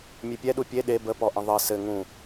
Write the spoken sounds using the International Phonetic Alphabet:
mʲepʲɛɗu pʲe ɗe bəpɔ ʔə̃ðˤɘ sɘ ŋũ

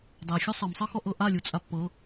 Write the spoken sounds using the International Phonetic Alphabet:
dˤɛ xʲusˤɤmsˤɤ xɔʔɤʔa lʲut͡sʼapːɤ

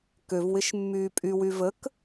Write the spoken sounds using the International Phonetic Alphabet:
køvwɪʃ mːyːpʼywy vək

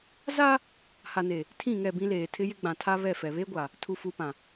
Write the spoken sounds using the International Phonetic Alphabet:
za˦ | ha˨ne˨ | tʰĩ˦˨ŋɛ˦˨bĩ˦leː˨ tʰɪ˦jɪ˦ ɡ͡bã˨tʰa˦βɛ˦˨fɛ˨ βe˦ɡʷa˨ | tʰu˨fu˨pã˨

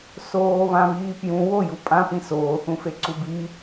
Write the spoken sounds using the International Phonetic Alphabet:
soːβãβiː pjũ woju pʼãpĩ soːθũfeǀu bi

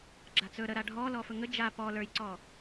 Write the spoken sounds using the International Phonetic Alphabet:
ɡ͡ǁat͡sɵ ɾə ɾaɖʱɔlɔ fɵŋə d͡ʒa pɔ lə˞jǀɔ

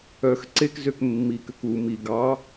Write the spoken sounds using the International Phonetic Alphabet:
œx ǀekzøk mːikøk u mi ɡɑ

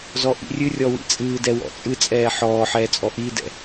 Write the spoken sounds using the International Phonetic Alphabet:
zɔʔḭrʲɨrʲɔ wḭt͡sʼɨːdɛ wɔ̰t͡sʼɨt͡sʼɛː ħɔːħɛː t͡sʼɔʔiːdɛ̰

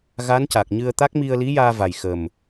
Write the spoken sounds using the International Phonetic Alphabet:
ɣa˧˥nca˨˩k̚ ɲɨ˧ə̯t̪a˦˥k̚ mi˧ə̯li˧˥jaː˧ va˨˩jxə˨˩m

